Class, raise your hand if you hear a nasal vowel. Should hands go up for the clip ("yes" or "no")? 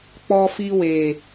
no